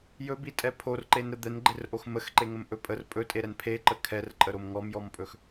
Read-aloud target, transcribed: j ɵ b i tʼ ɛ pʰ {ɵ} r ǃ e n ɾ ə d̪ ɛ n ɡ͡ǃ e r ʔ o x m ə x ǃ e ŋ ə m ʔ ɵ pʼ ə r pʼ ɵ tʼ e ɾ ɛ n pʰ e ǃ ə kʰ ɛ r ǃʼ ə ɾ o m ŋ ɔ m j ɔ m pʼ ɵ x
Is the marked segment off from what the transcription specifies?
yes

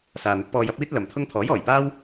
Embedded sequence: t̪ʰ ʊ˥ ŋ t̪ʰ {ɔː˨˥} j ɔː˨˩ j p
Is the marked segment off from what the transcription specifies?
no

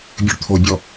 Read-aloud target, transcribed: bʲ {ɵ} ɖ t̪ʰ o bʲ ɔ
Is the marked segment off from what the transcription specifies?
no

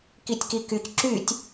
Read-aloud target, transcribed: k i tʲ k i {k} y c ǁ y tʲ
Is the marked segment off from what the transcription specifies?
no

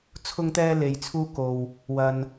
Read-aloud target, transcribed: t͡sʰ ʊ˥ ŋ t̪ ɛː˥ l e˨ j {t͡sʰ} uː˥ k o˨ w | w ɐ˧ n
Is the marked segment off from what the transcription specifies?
no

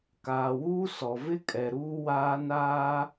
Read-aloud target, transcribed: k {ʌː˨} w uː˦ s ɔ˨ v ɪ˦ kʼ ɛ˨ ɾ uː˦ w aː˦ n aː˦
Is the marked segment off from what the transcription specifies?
yes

